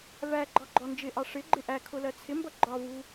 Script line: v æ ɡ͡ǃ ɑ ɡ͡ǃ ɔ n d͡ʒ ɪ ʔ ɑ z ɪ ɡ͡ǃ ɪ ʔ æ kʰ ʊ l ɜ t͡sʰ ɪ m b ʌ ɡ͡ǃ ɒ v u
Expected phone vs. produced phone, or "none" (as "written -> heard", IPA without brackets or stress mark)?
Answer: z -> ʂ